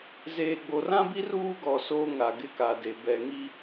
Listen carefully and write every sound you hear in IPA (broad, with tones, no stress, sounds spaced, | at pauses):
z eː˨ ɡ͡b o˨ r ã˦ b i˦ r uː˦ ɡ ɔ˨ s oː˦ ŋ a˨ ɡ ɪ˦ k a˨ d e˨ b ɛ˨ ŋ i˦